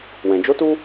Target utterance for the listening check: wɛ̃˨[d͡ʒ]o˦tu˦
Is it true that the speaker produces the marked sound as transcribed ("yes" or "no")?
yes